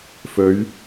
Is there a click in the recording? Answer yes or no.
no